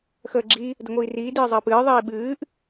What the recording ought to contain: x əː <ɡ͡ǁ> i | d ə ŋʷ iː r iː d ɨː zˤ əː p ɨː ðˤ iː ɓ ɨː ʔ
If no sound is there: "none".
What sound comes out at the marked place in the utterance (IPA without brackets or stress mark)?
ɡ͡ǁ